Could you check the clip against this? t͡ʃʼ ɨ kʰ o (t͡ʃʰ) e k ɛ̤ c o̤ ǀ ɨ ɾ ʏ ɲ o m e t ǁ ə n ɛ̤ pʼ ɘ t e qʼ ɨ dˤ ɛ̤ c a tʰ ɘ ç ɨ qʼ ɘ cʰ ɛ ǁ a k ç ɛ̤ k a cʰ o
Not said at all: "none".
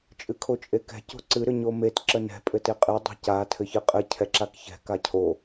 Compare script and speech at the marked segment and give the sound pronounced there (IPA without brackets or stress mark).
t͡ʃʼ